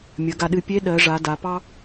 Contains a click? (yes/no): no